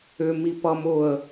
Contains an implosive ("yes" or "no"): no